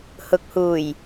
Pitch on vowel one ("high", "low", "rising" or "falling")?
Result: low